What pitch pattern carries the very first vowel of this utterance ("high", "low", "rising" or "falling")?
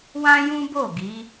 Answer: high